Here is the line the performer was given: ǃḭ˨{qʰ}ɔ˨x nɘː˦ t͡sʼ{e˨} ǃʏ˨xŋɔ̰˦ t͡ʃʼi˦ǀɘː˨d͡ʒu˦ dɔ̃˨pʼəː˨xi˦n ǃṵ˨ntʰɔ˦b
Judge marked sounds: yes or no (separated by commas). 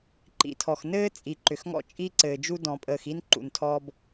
no, no